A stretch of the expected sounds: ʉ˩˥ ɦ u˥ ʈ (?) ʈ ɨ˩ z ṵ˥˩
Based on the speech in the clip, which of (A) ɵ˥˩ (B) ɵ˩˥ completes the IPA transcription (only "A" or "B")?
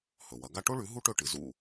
A